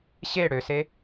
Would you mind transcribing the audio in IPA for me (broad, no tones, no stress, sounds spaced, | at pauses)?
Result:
ɕ e ɽ ø s e